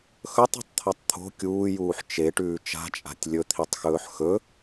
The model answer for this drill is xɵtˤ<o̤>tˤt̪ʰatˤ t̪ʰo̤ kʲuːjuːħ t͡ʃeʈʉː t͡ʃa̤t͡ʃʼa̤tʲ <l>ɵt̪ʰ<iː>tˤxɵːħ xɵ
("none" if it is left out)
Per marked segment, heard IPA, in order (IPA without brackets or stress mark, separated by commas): ṳ, lʲ, i